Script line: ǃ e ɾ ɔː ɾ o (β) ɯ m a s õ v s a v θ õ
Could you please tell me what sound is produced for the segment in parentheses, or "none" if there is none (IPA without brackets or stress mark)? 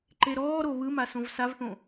β